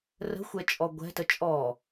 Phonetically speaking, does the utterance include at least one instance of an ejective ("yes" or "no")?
yes